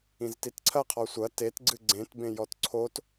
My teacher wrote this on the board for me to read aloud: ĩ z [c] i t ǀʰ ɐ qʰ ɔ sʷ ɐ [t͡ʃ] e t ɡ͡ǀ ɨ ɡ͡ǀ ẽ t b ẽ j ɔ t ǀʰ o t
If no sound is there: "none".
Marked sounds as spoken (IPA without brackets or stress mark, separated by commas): t, t